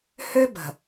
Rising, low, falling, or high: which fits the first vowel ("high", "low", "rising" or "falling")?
high